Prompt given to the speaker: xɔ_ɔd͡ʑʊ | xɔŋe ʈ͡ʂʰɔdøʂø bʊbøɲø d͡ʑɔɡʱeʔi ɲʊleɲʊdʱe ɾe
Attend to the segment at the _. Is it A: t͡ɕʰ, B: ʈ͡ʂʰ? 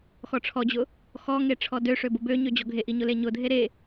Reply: B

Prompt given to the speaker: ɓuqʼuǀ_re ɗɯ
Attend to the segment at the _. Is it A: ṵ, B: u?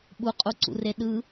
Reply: A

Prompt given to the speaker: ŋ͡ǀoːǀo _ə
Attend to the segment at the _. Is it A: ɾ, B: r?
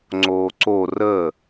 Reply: B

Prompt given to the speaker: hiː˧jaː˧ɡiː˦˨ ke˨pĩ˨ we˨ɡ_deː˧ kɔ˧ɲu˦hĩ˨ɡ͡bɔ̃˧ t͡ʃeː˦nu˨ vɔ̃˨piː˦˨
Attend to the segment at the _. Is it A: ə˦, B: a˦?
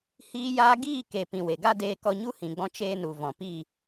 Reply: B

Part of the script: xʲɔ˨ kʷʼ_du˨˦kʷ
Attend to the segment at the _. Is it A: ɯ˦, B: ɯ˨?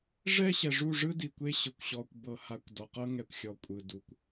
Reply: B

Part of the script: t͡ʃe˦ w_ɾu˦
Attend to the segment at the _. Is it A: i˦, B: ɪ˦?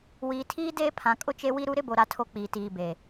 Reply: A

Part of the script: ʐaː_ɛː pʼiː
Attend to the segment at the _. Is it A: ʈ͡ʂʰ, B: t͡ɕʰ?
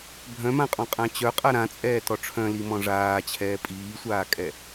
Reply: B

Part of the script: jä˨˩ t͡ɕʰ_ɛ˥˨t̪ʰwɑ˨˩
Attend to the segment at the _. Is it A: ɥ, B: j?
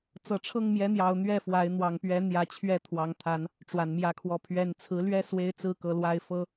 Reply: A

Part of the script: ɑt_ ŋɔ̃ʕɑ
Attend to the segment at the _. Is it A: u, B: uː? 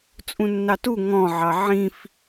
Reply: A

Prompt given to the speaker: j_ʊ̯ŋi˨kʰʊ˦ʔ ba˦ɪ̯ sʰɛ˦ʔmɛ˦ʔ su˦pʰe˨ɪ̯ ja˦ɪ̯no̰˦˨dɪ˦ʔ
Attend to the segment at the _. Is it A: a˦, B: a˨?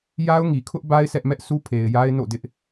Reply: A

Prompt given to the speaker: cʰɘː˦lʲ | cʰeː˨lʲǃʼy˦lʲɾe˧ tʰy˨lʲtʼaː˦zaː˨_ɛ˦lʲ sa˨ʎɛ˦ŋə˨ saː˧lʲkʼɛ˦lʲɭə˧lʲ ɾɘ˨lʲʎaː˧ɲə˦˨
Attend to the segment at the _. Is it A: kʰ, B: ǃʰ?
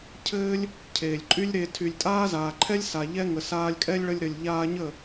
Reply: B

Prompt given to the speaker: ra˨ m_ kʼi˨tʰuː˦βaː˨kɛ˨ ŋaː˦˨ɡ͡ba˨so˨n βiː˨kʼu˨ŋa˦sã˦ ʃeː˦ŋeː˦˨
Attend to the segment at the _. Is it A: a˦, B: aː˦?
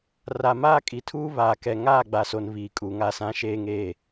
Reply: B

